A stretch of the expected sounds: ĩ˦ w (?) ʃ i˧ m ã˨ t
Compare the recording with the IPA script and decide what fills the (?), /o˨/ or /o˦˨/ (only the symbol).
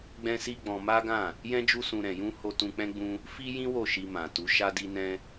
o˦˨